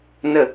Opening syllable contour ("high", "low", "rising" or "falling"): falling